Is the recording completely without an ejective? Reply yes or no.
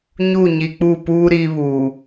yes